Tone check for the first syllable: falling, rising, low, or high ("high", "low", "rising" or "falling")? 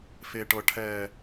high